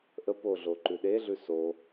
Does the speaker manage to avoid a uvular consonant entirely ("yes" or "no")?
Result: yes